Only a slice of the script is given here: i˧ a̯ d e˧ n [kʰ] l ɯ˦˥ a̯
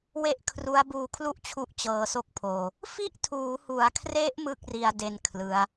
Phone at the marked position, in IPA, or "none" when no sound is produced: kʰ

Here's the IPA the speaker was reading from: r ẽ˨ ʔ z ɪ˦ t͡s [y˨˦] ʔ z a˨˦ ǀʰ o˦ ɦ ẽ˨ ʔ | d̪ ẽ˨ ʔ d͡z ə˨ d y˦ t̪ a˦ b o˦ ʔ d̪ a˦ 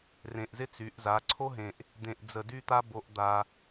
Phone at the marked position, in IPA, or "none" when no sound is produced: y˨˦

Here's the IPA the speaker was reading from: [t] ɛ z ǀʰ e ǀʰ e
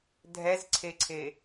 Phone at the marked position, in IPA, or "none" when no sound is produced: dʱ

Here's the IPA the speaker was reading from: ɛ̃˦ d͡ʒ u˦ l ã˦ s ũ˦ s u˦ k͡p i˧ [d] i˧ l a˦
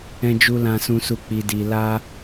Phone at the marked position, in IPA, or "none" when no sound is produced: d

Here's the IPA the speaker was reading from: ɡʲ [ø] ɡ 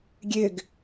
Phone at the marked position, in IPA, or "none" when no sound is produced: ø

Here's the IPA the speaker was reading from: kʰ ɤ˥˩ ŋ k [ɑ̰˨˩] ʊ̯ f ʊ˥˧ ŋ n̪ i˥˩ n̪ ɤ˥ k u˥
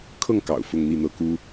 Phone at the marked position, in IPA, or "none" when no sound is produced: ɑ̰˨˩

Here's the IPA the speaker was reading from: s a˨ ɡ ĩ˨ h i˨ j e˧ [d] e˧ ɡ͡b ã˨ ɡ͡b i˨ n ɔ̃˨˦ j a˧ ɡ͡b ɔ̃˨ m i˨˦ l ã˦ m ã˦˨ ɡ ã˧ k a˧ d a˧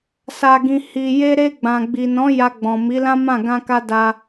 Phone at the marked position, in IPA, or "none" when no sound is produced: ɾ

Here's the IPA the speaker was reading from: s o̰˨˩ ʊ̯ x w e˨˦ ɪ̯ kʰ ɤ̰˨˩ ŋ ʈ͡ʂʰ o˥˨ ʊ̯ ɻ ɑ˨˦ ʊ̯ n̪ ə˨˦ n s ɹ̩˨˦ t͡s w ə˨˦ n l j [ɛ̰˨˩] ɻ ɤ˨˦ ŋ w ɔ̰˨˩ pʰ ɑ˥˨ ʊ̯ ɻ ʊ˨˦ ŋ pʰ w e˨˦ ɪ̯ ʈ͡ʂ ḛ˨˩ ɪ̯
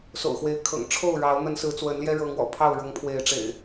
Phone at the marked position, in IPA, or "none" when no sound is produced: ɛ˦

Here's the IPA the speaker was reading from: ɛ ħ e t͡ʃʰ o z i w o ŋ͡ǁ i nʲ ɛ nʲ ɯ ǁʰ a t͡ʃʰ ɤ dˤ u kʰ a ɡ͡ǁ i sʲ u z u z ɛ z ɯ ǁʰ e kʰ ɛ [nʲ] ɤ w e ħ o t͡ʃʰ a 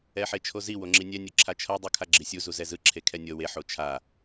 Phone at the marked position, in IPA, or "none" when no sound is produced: nʲ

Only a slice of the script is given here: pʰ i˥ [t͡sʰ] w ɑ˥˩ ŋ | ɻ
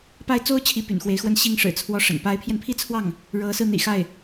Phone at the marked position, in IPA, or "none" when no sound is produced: t͡sʰ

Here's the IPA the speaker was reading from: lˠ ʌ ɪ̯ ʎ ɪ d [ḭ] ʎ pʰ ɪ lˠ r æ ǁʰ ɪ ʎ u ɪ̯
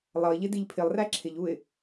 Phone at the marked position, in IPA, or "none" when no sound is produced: i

